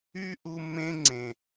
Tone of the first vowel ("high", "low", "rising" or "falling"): high